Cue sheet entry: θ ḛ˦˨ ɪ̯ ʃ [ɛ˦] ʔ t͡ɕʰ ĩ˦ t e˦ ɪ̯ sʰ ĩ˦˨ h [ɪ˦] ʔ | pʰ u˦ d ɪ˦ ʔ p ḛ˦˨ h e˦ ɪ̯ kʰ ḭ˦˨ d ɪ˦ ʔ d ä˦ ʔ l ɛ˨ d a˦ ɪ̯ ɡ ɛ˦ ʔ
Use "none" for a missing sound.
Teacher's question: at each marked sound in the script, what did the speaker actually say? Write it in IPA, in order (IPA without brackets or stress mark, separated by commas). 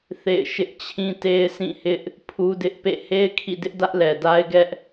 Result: ɪ˦, ɪ˦